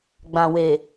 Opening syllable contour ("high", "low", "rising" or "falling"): low